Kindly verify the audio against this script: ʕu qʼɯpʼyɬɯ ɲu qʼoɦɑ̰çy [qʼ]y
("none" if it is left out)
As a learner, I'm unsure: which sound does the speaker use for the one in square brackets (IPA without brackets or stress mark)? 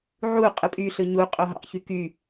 k